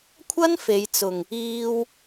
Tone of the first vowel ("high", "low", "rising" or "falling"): high